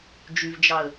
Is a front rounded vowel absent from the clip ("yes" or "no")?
no